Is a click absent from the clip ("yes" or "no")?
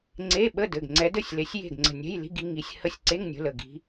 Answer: no